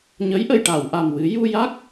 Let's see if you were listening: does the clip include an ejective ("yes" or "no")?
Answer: no